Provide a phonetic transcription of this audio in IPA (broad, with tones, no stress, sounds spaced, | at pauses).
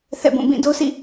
θ ɛ̰˦˨ b ũ˦˨ b ĩ˦˨ d o˦ s ḭ˦˨